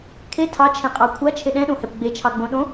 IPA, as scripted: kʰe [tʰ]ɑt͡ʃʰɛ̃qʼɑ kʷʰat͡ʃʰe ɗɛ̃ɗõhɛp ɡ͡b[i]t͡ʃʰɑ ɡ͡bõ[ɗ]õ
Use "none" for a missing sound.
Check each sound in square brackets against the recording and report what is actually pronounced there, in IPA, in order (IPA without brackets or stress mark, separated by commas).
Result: tʰ, e, ɗ